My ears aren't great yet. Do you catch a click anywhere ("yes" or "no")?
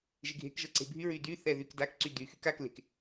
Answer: yes